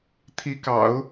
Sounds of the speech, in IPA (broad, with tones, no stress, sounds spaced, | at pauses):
t̪ʰ i˧˥ k ɑ̰˨˩˦ ʊ̯